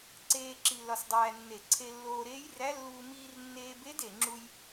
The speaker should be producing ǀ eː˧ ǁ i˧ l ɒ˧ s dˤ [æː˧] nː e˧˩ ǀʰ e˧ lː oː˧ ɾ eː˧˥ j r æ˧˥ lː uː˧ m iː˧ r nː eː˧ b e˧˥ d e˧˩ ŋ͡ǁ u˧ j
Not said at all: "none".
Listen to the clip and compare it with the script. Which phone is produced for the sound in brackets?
æː˧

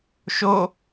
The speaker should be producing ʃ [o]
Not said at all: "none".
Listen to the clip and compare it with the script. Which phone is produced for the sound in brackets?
o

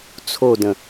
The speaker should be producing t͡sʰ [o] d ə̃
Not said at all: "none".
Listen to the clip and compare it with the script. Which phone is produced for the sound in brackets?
o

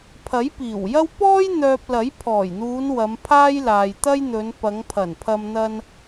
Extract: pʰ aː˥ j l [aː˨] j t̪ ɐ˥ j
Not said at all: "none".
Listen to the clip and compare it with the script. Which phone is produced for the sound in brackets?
aː˨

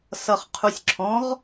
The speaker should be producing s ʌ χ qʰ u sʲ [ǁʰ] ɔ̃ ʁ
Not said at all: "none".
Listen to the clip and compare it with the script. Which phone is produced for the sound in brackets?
ǁʰ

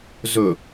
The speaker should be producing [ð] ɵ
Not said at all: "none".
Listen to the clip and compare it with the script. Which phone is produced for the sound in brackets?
z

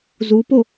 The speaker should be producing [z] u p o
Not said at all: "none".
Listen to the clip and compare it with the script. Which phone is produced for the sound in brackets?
z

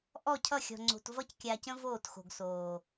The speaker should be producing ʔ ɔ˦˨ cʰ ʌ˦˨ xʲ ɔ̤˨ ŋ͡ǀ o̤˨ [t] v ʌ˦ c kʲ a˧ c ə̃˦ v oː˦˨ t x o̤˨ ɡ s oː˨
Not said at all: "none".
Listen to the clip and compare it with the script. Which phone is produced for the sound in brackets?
t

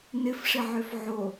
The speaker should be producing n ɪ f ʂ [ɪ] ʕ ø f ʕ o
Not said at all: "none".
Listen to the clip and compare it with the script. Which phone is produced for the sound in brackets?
ɪ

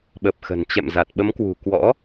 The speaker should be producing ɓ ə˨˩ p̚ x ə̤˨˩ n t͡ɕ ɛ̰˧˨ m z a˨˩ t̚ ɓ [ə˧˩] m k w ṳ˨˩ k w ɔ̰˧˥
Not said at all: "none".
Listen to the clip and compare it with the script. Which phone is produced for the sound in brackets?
ə˨˦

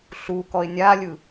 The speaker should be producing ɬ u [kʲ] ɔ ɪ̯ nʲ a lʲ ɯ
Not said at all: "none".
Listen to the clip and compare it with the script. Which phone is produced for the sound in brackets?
k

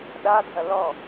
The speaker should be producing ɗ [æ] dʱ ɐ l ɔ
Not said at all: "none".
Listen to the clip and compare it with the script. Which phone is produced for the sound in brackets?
a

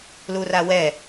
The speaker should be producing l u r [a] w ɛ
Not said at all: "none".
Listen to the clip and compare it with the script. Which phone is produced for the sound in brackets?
a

